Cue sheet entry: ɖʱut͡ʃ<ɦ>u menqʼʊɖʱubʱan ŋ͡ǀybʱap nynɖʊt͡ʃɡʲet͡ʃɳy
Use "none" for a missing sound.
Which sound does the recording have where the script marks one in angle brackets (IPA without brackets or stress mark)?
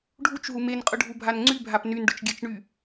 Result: ɦ